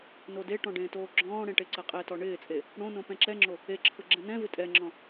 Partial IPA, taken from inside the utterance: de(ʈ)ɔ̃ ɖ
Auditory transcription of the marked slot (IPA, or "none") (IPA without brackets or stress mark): ʈ